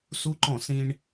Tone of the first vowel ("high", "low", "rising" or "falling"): high